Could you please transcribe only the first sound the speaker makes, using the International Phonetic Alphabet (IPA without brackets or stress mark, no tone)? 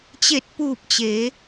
t͡ɕ